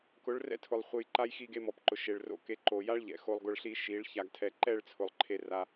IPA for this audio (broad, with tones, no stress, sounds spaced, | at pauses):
k ʊ˨˦ ɭ r ɛ̰˦ tʰ ʊ˨ lˠ χʷ e˧ j ǃ a˦ j x i˧ ɡ e˧ m ɔ˨ p ǃ ʊ˨ ʃ e˨ ɭ r o̰˧ k e˧ ǃ o˨ j a˦ ɭ ʎ ɛ̰˨ x o˧ lˠ ɡ ʊ˧ ɭ ɬ i˦ ʃ i˨˦ ɭ ç a˧ ɡ tʰ ɛ˧ ǃ ɛ˦˨ ɭ t͡sʰ ʊ˨ lˠ ǃʰ e˧ r a˧